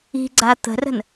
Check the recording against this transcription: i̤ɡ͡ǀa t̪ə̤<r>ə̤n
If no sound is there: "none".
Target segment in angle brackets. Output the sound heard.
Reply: r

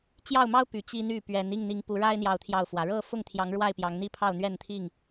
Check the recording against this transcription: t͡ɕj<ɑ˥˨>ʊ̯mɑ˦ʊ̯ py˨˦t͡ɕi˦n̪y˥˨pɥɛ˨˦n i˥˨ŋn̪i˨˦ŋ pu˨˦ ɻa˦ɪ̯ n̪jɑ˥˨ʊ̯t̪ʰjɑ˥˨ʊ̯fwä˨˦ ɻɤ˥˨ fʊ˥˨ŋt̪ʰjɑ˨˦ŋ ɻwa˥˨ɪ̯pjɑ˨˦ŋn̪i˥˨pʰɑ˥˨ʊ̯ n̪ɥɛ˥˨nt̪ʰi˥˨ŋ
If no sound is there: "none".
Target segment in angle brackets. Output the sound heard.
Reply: ɑ˥˨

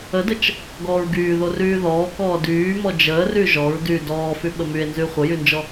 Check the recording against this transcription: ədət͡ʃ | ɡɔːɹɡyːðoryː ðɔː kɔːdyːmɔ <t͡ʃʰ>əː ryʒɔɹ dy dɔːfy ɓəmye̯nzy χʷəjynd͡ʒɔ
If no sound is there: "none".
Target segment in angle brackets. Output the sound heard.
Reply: d͡ʒ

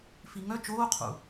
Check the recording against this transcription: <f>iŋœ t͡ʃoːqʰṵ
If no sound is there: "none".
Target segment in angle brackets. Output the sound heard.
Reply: f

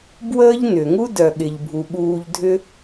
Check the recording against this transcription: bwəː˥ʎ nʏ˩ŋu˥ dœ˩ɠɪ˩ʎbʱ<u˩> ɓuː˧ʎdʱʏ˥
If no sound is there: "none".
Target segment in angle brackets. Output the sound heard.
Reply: u˩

